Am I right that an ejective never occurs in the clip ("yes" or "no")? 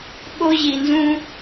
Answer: yes